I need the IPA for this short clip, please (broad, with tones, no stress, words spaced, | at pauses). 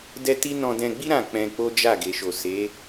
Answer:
dɛ˦ti˦ nɔ̃˧dɛ̃˧ɡ͡bi˦ ɾã˦˨k͡pɛ̃˧k͡po˦d͡ʒa˦˨ ɡe˨ʃo˨se˨˦